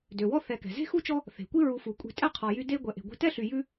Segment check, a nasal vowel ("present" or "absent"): absent